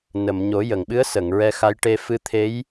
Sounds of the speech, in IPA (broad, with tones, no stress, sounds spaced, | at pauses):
n ə˨˩˨ m ɲ o˨˩˦ j ə˨˩˨ ŋ ɓ ɨ˧˥ ə̯ s ə˨˩˨ ŋ ɹ ɛ˧ x a˧˥ j ʈ e˧ f ɨ˧˥ t̪ʰ e˧˥ j